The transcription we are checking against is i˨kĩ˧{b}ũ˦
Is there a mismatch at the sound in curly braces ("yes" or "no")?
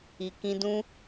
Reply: yes